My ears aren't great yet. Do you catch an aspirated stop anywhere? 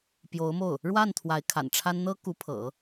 yes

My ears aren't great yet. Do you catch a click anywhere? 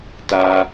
no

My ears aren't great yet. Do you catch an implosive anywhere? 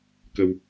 no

